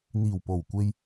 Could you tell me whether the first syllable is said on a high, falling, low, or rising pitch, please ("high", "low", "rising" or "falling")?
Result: low